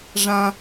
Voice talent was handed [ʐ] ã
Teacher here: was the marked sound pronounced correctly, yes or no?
yes